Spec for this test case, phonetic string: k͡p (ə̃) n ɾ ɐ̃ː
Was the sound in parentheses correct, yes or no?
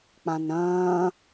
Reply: no